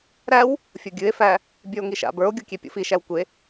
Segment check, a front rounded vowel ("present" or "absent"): absent